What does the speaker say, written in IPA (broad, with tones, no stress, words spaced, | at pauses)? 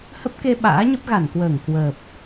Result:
hə˦˥p̚ke˧ ɓa̰ː˧˥ɲə˦˥p̚ɣa˧˩nkwəː˧˩ŋ kwəː˨˩p̚